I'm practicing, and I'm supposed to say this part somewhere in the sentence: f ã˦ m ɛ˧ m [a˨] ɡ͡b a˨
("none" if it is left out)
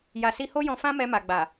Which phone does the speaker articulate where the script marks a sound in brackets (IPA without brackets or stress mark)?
a˨